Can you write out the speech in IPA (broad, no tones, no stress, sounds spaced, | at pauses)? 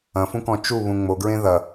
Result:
ɐ̃ f ũ k ɔ̃ t͡ʃ u β ũ ŋ͡m o ɡ ɹ ẽ ð ɐ